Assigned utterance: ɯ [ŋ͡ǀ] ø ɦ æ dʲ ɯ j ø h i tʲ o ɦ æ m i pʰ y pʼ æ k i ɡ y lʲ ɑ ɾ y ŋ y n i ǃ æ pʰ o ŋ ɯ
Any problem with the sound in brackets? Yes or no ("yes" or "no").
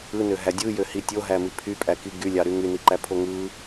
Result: yes